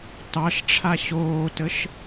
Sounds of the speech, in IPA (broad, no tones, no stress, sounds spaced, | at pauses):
t ɑ ʃ ʈ͡ʂʰ a ɕ oː t ə ʃ